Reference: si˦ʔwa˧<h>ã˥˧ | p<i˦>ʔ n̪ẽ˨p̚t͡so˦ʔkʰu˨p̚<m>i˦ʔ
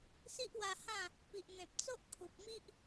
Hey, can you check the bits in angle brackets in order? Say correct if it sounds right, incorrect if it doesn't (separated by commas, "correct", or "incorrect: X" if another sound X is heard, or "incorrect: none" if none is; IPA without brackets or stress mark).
correct, incorrect: i˨, correct